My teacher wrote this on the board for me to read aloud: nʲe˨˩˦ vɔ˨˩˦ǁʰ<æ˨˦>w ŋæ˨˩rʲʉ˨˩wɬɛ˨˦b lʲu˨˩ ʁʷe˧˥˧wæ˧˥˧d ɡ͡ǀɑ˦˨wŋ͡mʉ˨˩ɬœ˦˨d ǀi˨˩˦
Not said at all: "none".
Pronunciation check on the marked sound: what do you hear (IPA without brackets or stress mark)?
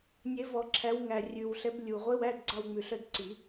æ˨˦